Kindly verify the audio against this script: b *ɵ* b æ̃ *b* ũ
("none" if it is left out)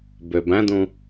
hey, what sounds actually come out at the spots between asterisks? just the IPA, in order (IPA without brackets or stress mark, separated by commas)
ø, d